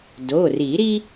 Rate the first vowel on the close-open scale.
mid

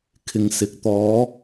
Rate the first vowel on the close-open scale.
close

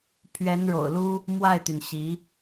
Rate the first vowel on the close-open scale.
mid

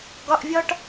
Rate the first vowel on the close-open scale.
open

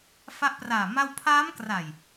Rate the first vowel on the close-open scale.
open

